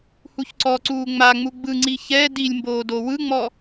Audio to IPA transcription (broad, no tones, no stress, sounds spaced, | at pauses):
h u ç ǀ ɔ ǀ uː ŋ͡m a ŋ͡m u ɡ͡b ɯ ŋ͡ǀ i ç ɛ d i lʲ m b oː d o w ɯ ŋ͡m ɔ